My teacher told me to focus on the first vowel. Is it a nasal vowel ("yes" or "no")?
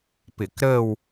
no